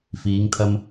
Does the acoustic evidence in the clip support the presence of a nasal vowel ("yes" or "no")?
no